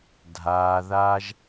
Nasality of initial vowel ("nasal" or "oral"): oral